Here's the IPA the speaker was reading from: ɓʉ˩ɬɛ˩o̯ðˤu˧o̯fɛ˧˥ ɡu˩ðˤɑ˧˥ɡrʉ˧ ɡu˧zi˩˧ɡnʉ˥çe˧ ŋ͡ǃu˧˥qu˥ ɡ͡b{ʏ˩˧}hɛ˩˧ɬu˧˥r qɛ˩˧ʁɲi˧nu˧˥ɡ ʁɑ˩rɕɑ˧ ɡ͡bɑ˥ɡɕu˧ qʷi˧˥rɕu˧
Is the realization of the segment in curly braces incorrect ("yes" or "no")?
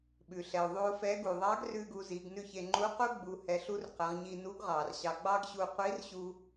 yes